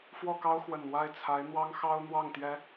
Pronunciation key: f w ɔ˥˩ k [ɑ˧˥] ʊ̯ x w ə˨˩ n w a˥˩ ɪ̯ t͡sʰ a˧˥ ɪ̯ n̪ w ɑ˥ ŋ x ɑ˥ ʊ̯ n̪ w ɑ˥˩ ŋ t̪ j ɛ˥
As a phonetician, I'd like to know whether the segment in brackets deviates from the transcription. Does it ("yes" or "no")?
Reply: yes